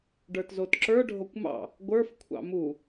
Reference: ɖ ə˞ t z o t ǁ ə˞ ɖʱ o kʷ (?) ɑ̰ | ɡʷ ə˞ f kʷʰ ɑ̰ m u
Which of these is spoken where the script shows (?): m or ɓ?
m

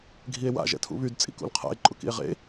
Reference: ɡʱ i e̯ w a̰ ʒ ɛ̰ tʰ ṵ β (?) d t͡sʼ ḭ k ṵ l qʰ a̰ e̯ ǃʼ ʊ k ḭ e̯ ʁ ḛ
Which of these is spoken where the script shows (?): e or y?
y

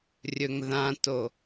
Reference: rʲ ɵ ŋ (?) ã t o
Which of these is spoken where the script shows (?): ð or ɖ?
ð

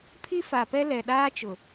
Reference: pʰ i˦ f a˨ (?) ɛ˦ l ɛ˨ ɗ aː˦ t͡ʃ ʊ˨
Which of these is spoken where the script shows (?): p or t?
p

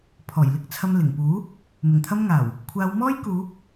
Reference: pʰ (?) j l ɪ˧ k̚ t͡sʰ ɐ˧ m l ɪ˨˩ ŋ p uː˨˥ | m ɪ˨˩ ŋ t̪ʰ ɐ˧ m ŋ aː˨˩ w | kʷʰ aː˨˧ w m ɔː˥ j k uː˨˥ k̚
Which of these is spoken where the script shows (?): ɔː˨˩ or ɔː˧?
ɔː˨˩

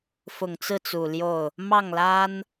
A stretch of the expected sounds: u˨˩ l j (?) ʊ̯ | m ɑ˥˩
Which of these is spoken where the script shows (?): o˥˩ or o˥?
o˥˩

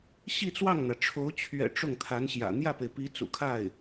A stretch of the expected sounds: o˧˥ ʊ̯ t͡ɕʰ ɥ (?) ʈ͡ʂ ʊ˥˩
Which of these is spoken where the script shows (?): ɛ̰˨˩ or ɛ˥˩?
ɛ̰˨˩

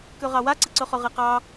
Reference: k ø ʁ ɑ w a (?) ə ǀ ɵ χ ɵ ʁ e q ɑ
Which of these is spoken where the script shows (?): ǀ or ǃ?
ǀ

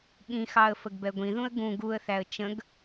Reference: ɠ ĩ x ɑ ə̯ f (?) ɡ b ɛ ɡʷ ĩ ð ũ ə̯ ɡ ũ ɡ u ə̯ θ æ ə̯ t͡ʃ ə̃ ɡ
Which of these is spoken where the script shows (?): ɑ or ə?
ə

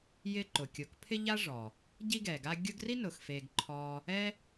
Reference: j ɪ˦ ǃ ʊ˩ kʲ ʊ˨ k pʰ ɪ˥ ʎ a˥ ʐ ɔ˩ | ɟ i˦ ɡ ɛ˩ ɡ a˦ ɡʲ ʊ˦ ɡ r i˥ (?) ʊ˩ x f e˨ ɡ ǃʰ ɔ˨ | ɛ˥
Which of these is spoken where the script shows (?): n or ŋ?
n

